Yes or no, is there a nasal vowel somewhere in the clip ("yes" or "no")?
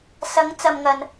no